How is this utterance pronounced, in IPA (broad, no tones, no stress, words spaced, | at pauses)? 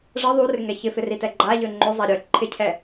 ʐə ðˤurɪŋɛ çɪfɪritɛ ɡ͡ǃaʎø ŋ͡ǃøzˤa ɾʲœ ǃʰɪcʰɛ